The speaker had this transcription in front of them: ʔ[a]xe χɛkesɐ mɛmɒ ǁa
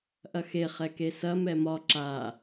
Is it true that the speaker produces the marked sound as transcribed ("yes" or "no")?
no